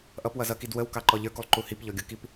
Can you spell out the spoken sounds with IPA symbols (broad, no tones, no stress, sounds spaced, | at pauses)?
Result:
ʔ ʌ p w ʌ z ʌ k i d w ə w k ɑ ǃ ɔ ʎ ə˞ k u lˠ ǃ u h i p ʎ ɔ ɡʲ ʊ k i p